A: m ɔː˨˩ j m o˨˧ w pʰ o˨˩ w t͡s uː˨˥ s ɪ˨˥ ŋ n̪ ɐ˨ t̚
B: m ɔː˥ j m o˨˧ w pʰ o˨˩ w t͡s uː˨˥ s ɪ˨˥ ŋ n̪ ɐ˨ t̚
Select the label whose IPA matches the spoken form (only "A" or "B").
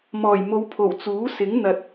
A